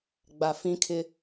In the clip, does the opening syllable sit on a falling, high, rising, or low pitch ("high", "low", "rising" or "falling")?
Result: low